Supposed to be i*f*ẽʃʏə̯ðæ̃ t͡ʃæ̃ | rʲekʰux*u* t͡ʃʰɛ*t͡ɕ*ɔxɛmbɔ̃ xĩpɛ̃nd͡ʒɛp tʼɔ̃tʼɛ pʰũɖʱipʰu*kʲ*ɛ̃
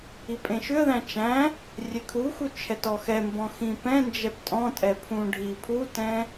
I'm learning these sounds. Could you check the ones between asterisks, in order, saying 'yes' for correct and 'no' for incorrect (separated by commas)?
no, yes, no, no